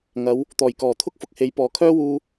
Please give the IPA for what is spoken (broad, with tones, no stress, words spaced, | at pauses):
ŋɐ˨˧w | t̪ɔː˨˩jkɔː˨˩ t̪ʰʊ˥k̚fʊ˨k̚he˨˥j pɔː˨kʰœː˥ wuː˧